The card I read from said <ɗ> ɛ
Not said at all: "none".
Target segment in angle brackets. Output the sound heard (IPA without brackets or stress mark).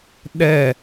ɗ